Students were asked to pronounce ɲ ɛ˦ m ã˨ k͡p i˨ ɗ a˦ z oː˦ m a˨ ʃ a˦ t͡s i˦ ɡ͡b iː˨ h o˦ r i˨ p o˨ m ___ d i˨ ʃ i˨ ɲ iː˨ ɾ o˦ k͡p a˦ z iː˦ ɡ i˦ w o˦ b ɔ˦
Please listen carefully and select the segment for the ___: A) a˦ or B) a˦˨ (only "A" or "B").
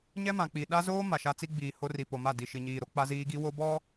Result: B